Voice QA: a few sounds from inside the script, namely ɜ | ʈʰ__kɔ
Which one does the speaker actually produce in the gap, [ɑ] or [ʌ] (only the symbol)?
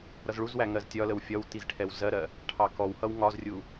ɑ